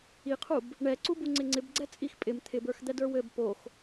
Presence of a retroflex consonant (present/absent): present